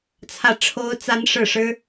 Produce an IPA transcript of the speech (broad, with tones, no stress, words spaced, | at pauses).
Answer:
t͡sʰä˥˩ʈ͡ʂʰo˥ʊ̯t͡sa˥n ʂɻ̩˥˩ʂɻ̩˥